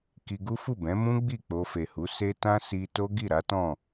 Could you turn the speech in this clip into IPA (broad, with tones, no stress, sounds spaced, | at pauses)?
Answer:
k i˧ ɡ u˦ f u˦˨ b ɛ̃˨˦ m ũ˦ ɡ͡b i˦˨ k͡p o˧ f e˨ h u˨˦ s e˦ t ã˦ s i˧ t o˦ ɡ i˦˨ ɾ a˨˦ t ɔ̃˦˨